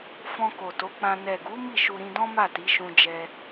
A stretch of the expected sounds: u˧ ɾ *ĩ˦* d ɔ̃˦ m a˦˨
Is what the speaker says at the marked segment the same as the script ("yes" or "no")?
no